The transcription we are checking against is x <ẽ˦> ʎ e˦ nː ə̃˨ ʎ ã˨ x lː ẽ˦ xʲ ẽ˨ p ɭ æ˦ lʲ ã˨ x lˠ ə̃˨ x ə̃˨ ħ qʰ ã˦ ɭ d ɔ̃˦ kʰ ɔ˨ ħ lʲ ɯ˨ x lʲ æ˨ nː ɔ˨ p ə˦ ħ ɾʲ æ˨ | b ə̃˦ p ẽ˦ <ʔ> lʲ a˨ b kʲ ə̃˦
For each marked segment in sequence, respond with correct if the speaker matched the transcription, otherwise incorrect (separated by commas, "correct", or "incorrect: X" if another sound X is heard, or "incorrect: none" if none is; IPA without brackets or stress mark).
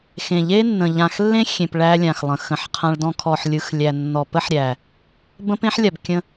incorrect: ẽ˨, incorrect: ħ